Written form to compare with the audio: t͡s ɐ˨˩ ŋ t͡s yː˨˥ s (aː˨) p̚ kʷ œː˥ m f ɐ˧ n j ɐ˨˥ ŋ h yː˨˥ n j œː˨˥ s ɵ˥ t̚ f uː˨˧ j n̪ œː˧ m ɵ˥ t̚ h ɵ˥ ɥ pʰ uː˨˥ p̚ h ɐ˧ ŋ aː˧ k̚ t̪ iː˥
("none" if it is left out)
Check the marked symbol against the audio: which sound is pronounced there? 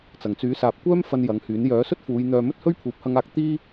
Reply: aː˨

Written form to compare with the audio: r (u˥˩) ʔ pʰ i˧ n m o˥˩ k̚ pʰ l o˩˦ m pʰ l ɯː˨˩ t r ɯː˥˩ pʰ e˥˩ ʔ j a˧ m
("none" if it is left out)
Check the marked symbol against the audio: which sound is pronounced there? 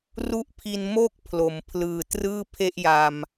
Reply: u˥˩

